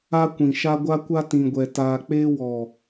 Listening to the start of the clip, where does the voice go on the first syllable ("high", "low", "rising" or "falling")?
high